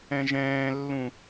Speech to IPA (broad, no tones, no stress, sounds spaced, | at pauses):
ɛ̃ ʒ ɛ̃ː lː ũ